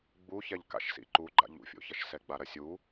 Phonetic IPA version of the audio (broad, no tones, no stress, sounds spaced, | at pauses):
ɡ͡b u ç ɛ ʎ k a̰ ʃ s ḭ ǃ u ɡ͡ǃ a̰ ʎ ṵ fʲ o̰ ç ɐ ʃ s ɛ ɡ͡b a ɾ ɐ sʲ u